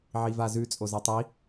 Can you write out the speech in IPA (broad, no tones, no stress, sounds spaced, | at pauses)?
ʕ i v a z ʉ t͡sʼ o z ɛ tˤ i